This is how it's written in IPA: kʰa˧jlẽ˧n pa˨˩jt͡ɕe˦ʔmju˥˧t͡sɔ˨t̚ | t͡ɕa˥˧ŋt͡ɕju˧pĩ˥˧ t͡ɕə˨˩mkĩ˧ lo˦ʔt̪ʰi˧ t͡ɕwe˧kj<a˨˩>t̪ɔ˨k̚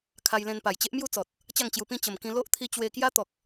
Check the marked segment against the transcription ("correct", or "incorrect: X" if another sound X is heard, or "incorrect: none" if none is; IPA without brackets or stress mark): incorrect: a˦